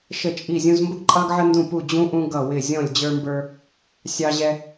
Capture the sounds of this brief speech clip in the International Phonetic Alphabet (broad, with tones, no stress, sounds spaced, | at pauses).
ʃ ə˧˩ t͡ʃʼ i˧˩ zʲ ũ˧ z m b ə˧ ɡ ǃʼ ɑ˧ ɡ ʕ ə˧ n d ũ˧˩ p u˧˩ d͡ʑ ũ˧ ʔ ũ˧ ɡ ʌ˧˩ w ɪ˧˩ zʲ ɔ̃˧˩ lʲ d͡ʑ ə˞˧ m b ə˞˧ | sʲ ɑ˧ ʑ ɛ˧